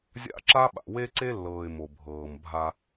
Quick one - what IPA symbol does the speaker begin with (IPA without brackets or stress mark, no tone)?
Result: zʲ